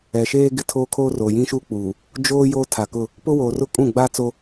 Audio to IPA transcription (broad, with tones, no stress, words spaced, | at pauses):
ɛ˨ʃeː˦ ɡɪ˦tʰoː˦ kʰoː˦roː˨jĩ˦ʃuː˦ k͡puː˨ | d͡ʒoː˦ joː˦tʰa˨kʊ˦˨ | pʊ˦woː˨rʊ˦ kʼũ˦˨ɡ͡ba˦ t͡so˦